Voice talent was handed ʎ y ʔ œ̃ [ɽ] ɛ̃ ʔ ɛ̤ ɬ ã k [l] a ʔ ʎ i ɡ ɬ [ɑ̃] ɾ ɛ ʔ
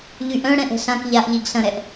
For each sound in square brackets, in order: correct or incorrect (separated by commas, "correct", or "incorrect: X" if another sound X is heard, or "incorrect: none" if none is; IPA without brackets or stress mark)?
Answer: correct, incorrect: ʎ, incorrect: ɐ̃